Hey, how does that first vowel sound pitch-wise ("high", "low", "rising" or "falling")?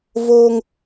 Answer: high